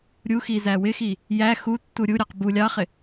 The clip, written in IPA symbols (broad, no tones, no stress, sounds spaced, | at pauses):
ɾʲ u x i z æ w ɪ x i | j æ x u tː u ɾʲ u ɾʲ ɑ q b u lʲ ɑ χ ɪ